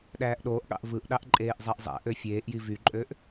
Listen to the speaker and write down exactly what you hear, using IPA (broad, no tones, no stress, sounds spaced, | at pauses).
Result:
ɗ æː ʔ ɗ oː ʔ ɠ ɑ̰ ʔ v ɯ ʔ ɗ ɑ ʔ ǃʼ eː ʔ zˤ æ ʔ zˤ æ̰ ʔ ø fʲ eː ʔ j i v y ǃʼ ø ʔ